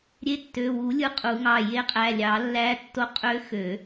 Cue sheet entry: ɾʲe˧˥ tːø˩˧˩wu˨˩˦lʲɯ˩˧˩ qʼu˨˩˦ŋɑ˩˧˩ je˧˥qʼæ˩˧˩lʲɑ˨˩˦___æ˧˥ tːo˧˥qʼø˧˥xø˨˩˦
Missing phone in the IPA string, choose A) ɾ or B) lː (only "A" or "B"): B